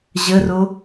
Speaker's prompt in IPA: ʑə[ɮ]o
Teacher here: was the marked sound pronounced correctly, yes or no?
no